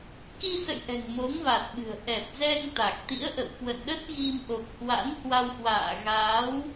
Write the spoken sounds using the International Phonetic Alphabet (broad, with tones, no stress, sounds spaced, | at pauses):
k i˧ s ə̰˧˨ j ʔ ɛ̤˨˩ ŋ m o˨˦ ŋ v a˨˩ t̚ ɓ ɨ̤˨˩ ə̯ ʔ ɛ˨˩ p̚ z ɛ˧ ŋ t̪ a˨˩ k̚ t̪ ḭ˧˥ ə̯ ʔ ə̰˧˨ w k w ə̰˧˨ n ɗ ə˦˥ t̚ ɣ i˧ m ʔ o˨˩ k̚ h w a̰˧˥ n h w a˧ w h w a̰ː˧˨ ɣ aː˨˦ w